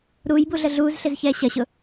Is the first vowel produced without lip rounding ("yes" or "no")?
no